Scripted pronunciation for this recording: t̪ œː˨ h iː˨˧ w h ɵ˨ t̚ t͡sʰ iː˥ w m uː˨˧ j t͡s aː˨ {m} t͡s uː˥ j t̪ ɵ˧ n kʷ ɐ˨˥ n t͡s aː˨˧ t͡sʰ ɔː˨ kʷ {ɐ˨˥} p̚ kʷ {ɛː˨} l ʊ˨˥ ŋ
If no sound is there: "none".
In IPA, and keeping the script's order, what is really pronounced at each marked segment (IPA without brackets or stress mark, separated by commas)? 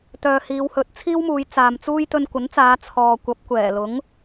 m, ɐ˨˥, ɛː˨˩